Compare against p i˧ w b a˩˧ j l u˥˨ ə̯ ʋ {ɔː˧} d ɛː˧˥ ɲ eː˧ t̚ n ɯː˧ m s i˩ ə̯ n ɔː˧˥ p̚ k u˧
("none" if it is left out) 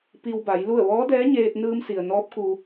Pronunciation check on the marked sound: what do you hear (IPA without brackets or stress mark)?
ɔː˧˥